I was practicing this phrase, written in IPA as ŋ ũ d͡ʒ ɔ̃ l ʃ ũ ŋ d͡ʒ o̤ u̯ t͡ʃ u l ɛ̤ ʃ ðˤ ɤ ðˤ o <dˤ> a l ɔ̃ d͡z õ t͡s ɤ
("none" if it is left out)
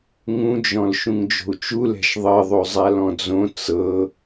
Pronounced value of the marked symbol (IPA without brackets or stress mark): zˤ